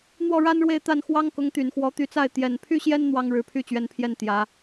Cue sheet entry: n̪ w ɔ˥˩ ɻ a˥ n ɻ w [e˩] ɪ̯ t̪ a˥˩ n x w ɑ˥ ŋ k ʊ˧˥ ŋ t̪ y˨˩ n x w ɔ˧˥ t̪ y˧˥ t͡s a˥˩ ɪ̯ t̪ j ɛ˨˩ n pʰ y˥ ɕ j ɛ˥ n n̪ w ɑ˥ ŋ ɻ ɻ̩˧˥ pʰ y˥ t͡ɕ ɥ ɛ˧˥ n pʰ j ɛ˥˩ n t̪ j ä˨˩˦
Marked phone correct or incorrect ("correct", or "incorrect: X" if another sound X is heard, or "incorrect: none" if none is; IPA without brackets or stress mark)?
incorrect: e˥˧